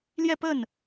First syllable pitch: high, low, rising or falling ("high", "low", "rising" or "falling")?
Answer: falling